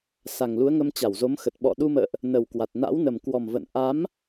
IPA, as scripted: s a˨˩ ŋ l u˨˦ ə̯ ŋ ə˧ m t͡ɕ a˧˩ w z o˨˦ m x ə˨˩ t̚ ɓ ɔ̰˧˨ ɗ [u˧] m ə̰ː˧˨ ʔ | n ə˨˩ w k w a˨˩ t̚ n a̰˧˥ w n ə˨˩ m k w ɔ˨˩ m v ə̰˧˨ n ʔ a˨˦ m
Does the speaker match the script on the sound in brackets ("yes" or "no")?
yes